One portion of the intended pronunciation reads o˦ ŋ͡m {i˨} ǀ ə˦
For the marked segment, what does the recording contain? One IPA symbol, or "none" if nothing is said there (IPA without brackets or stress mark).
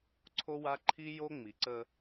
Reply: i˨